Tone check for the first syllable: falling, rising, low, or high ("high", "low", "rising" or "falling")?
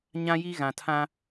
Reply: high